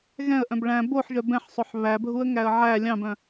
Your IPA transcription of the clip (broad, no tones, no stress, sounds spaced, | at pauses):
ɣ ɛ̃ ə̯ ʔ œ̃ b ɭ æ̃ b o ħ ʒ œ b ɛ̃ ħ sˤ ɵ ħ β æ bʱ u ə̯ ŋ æ ə̯ ʕ æ lʲ ɑ̃ b œ̃